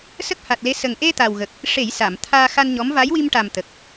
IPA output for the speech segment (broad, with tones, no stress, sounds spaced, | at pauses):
s ə˦˥ k̚ h a˨˩ t̚ l e˧˥ s ə˨˩ ŋ ʔ e˧ t̪ a˨˩ w ɣ ə˨˩ k̚ | ʂ e˨˩˦ j s a˨˩˨ m t̪ʰ aː˧ x a˧ n ɲ ɔ˧˥ m v a˧˥ j w i˧ m ʈ a˨˩ m t̪ ə˨˩ k̚